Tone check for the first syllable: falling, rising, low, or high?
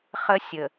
high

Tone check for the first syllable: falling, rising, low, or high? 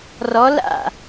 rising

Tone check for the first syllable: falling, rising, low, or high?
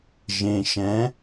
low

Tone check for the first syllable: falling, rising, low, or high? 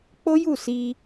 high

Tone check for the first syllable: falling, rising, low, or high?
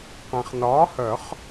low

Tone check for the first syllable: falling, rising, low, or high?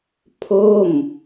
falling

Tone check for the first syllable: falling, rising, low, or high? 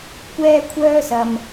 high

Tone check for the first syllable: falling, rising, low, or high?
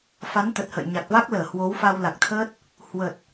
rising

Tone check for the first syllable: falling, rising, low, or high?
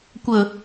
low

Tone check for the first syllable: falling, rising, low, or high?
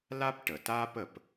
high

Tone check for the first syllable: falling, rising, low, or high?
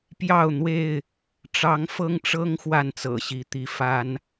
falling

